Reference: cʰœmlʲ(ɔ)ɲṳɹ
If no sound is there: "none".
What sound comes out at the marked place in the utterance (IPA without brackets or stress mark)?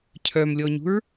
ɔ